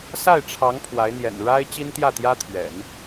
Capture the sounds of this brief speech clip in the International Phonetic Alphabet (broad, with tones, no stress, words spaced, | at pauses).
sa˥˩ɪ̯ʈ͡ʂʰɑ˧˥ŋ pʰwa˧˥ɪ̯n̪jɛ̰˨˩n ɻa˥ɪ̯ t͡ɕi˥nt̪jä˥˩t̪jä˥t̪ʰɥɛ̰˨˩˦n